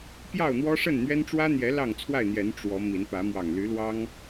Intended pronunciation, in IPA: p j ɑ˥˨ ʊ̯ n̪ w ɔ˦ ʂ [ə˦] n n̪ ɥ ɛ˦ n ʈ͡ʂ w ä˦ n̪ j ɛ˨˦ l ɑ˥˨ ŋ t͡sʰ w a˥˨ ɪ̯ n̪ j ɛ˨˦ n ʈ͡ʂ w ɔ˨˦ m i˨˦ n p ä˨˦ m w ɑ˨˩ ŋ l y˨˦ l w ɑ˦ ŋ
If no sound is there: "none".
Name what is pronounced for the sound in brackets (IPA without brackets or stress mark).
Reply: ə˥˨